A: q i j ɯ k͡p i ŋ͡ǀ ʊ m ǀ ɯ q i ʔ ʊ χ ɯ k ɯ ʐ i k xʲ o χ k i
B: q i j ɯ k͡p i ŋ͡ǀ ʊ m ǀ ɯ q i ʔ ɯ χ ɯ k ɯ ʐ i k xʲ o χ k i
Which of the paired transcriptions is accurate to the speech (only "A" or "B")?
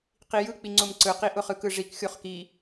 A